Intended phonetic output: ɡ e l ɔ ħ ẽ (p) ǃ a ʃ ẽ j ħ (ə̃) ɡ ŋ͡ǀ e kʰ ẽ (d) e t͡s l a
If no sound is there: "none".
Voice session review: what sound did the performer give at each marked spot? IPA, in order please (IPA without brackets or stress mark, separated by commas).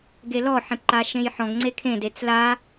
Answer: p, ɔ̃, d